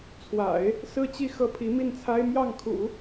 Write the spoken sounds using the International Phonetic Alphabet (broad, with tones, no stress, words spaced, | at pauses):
t͡sʰwa̰˨˩˦ɪ̯ | sɹ̩˥˧ t͡ɕi˥˩ xɤ˥pʰi˧˥mi˥˩nt͡sʰa˥ɪ̯ mjɑ˥˩ŋkʰṵ˨˩˦